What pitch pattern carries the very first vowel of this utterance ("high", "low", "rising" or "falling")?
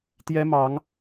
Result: high